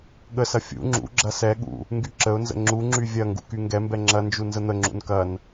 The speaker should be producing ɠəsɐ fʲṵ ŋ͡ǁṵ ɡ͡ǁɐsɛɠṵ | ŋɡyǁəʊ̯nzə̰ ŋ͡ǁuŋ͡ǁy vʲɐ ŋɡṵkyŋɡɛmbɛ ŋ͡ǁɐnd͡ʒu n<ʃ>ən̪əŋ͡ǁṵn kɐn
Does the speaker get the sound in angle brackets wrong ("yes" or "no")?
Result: yes